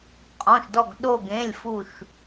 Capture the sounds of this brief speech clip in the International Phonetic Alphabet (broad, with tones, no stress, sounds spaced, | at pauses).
qʼ ɔ̃˩˧˩ ʃ d ɔ˧˩ ɡ ɗ o˧˩ ɡ ẽ˩˧˩ lʲ f u˧˩ ʃ